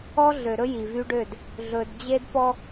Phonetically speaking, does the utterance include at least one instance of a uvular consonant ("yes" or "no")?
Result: no